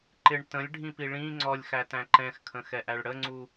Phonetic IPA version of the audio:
ǃ ɪ ɳ t ə̃ lʲ ɖʱ ĩ p i ɭ ĩ ŋ͡ǀ ɔ lʲ x æ t æ̃ ǃ ɛ̃ x kʰ ə̃ x ɛ ʔ æ ɭ ɽ ə ŋ͡ǀ u

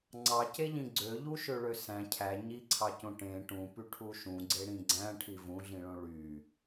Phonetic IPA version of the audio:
ŋ͡ǀ ɑ c e ʎ ĩ ɡ͡ǀ ø ʎ u ʃ ø ɭ ø s æ̃ cʰ æ ɲ i ǀʰ ɑ c õ ʈ ẽ ʈ ũ p y ʈʰ u ʃ ũ ɡ͡ǀ e ɽ ĩ ɡ͡ǀ æ̃ ʈʰ i v ũ ɮ ĩ ɭ õ ɭ y

